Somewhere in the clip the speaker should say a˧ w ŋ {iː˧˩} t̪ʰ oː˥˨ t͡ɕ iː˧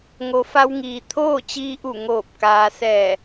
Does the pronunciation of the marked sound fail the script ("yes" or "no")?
yes